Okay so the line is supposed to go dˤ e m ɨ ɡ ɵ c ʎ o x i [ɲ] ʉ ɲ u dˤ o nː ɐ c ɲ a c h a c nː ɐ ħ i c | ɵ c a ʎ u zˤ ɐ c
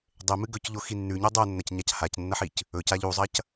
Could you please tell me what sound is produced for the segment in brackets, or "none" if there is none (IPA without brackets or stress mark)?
nː